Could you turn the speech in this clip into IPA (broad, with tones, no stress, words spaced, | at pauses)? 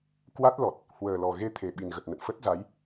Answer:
kwa˦˥t̚lɔ˨˩t̚ | hwəː˨˩lɔ˨˩ɣe˧ t̪ʰe˨˩ɓi˨˩nɣə˨˩t̚nə̰˧˨n fə˦˥t̚za˨˦j